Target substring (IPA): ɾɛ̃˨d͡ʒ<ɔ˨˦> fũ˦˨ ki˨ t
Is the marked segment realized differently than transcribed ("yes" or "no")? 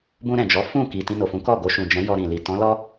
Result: no